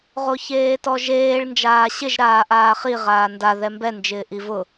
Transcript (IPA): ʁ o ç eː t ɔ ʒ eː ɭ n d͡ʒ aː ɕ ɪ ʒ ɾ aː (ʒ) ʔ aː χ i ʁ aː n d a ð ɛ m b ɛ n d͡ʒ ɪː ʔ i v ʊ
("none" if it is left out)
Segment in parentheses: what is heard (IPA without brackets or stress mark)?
none